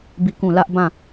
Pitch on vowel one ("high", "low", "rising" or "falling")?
falling